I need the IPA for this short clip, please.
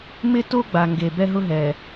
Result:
mɪ˦ to˦ɡ͡ba˨ ŋɡe˨ bɛ˦ɦʊ˦ɦɛ˨

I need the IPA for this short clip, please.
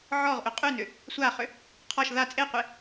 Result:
ʕɔʁ ʔʏqʼʉnʏ | sʷaχʏ | qʰɔʃ ða t͡sʼeqʷe

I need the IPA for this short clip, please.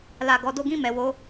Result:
la˧ɡɔ˧ do˧ɡĩ˧ mɛ˨wo˨˦

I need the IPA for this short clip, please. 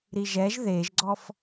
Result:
ɾiʒɛʒ ðeʒɡ͡ǀɔf

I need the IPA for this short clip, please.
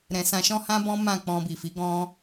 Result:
ɾɛ̃˧ sã˧ʃɔ̃˦hã˦bɔ̃˦ mã˦˨k͡pɔ̃˧bi˨fi˨˦ ɡɔ̃˧

